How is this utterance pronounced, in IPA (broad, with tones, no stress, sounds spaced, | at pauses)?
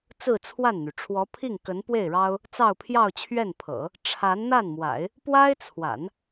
t͡s ɹ̩˥˧ t͡sʰ w a˥˩ n n̪ y˩ ʈ͡ʂʰ w ɔ˧˥ pʰ i˥˩ ŋ k ə˧˥ n p w e˥˩ ɪ̯ ɻ ɑ˥ ʊ̯ | t͡s ɑ˥˧ ʊ̯ pʰ j ɑ˥˧ ʊ̯ t͡ɕʰ ɥ ɛ˥˩ n pʰ ɤ̰˨˩˦ | ʈ͡ʂʰ a˧˥ n n̪ a˥˩ n m w a̰˨˩˦ ɪ̯ | p w a˥ ɪ̯ t͡sʰ w a̰˨˩˦ n